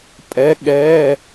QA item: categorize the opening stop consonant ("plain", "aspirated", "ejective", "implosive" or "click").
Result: ejective